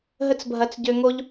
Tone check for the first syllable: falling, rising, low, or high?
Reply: high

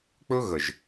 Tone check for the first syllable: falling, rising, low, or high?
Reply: high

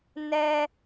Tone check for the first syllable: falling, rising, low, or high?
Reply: high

